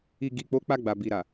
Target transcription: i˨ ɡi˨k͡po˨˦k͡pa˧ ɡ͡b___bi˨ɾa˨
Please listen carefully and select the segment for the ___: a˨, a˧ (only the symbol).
a˨